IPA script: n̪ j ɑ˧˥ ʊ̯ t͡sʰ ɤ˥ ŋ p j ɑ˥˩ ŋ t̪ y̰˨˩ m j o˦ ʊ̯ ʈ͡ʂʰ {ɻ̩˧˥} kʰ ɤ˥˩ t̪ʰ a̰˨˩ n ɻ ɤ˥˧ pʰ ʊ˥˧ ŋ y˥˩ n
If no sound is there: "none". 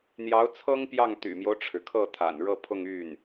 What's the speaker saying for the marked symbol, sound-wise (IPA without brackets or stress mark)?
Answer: ɻ̩˩